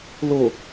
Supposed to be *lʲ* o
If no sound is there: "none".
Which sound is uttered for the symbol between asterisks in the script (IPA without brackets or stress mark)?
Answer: l